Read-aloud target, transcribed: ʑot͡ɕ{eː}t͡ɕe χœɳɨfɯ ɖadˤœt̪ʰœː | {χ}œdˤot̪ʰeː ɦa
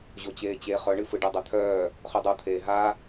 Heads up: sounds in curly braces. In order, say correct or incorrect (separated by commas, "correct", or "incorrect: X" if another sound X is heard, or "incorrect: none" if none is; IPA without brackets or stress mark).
correct, correct